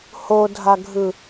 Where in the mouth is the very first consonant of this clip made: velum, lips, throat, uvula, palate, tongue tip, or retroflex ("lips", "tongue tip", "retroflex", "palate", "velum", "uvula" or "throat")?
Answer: throat